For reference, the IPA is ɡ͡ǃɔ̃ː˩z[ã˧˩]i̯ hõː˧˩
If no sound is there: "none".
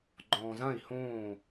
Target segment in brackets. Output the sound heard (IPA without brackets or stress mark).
ã˧˩